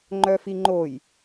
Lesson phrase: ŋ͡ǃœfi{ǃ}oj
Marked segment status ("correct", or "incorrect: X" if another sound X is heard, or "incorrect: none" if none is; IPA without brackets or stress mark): incorrect: ŋ͡ǃ